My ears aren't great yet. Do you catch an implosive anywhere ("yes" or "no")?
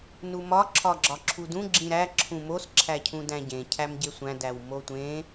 no